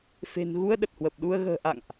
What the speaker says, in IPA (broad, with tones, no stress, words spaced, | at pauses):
fe̤˨˩nɣu˧ə̯ ɗə˨˩t̚hwə˨˩p̚ɗu˧ə̯ ɣə̤ː˨˩ ʔa̰˧˨ŋʔ